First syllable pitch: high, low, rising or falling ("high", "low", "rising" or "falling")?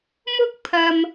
high